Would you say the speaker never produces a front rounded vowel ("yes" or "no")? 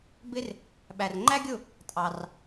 yes